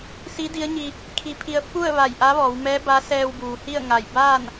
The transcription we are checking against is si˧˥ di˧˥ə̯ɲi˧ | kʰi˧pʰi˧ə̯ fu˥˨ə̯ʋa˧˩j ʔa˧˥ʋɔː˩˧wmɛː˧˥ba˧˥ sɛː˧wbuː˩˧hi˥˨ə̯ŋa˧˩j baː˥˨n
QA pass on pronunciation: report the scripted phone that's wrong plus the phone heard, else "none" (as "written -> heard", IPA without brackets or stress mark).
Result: none